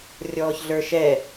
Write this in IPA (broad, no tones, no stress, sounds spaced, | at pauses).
rʲ ɔː ç ɮ ə˞ ʃ ɛ